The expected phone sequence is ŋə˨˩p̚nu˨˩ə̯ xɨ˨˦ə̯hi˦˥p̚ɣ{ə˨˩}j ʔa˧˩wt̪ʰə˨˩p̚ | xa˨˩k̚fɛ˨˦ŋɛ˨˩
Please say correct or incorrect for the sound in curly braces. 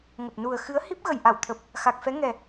correct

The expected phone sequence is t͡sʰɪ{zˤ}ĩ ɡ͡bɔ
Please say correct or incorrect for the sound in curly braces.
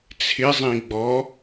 correct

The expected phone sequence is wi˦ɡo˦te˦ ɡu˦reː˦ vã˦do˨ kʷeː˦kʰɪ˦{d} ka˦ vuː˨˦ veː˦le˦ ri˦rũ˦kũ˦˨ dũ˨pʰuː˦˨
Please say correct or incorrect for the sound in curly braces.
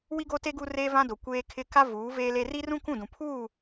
incorrect: none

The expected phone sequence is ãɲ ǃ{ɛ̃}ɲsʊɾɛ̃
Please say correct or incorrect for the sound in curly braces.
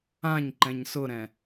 correct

